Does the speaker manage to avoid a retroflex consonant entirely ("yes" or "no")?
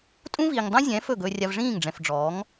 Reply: no